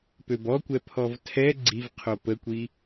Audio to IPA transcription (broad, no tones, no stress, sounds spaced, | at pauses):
p ø b ɔ kʷ ɛ pʰ ɔ v tʰ ɛ ɡ͡ǀ i v qʰ o p ə kʷ i